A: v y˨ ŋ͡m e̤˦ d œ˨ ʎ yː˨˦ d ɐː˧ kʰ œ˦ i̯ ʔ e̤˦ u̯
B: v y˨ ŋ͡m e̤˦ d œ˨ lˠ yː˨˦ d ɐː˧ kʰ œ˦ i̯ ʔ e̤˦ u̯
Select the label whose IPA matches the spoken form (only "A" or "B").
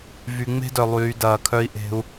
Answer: B